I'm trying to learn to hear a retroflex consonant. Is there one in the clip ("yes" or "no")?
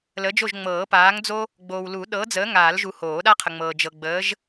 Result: no